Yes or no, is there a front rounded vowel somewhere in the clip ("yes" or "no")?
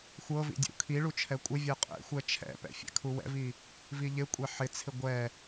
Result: no